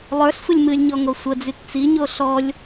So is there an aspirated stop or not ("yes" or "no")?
no